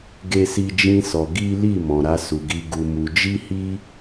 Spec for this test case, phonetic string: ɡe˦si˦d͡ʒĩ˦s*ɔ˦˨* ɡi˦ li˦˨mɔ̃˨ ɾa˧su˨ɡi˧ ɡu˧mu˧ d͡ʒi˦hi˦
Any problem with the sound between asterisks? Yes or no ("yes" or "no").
yes